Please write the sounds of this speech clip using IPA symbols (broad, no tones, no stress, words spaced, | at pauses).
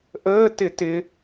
ʔəːtɪ tɪ